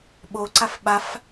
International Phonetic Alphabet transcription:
ɓ o ǀ a f ɓ a f

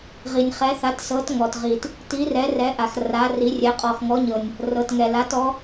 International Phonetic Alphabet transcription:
ʁ i˩ nʲ χ ɛ˩˥ θ a˩˥ t s ɤ˩˥ t ŋ ɔ˩ t ʁ i˩ t | t i˩˥ r ɛ˩˥ r ɛ˩˥ ʔ a˩ x r a˩˥ r i˩˥ rʲ ɛ˩˥ qʼ ɔ˩ x ŋ ɔ˩˥ ɲ ɤ˩ nʲ | r ɤ˩ t ŋ ɛ˩ l a˩˥ t ɔ˩˥

